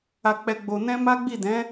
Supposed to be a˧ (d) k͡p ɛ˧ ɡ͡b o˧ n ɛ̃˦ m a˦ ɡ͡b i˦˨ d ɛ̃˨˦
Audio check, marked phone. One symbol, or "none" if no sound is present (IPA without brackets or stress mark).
none